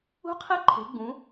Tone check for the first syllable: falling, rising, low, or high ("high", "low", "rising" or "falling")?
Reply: rising